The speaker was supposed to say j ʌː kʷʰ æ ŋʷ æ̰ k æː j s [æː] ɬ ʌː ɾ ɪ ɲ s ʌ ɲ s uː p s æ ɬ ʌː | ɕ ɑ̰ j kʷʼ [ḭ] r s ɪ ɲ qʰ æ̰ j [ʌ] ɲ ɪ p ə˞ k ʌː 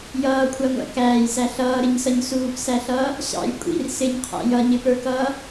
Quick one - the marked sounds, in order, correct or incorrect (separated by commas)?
incorrect, correct, correct